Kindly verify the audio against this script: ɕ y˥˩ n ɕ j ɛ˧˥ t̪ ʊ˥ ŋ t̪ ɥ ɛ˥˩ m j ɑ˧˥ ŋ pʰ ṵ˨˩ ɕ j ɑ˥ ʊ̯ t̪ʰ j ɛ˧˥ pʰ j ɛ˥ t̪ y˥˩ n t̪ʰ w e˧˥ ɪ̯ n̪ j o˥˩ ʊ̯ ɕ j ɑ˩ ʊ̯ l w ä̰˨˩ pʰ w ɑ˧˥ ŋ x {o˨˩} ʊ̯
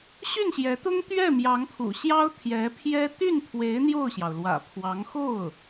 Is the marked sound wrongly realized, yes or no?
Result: yes